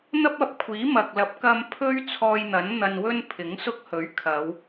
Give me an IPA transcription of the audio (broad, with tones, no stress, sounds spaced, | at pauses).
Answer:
n̪ ɐ˥ p̚ ɐ˨˥ p̚ kʷʰ iː˨˥ m ɐ˨ k̚ l ɐ˨˥ p̚ k ɐ˧ m pʰ ɵ˥ ɥ t͡sʰ ɔː˧ j n̪ ɐ˨˥ n n̪ ɐ˧ n w ɵ˥ n pʰ ɪ˨˥ ŋ s ʊ˥ k̚ h ɵ˨˥ ɥ kʰ ɐ˨˧ w